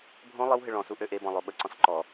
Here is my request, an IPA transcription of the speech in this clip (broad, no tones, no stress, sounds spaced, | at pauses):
bʱ õ lˠ ɪ w ɦ ɪ ɭ ɔ̃ s u ʔ ø ʔ e b ɔ̃ lˠ o ɓ ə ǀ ɔ̃ s ǃ ɔ